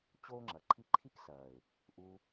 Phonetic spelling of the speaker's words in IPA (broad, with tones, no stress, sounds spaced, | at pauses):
t͡ɕ oː˦ ŋ͡ǁ ɐ˨ ǃʰ i˦ ǃʰ i˦ k s ɐː˨ ɪ̯ | ʔ u˧